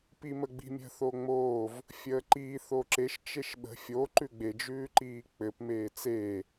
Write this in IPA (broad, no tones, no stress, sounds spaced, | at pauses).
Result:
p i m ə ɡ͡b i̤ mʲ ə̤ θ o ŋ͡m oː v | fʲ əː ǃ i θ o ǁ e ʃ t͡ʃ e ʃ ɓ ə̤ fʲ o ǃ ʉ ɡ͡b e d͡ʒ ʉː ǃ iː k͡p ɘ p m eː t͡s eː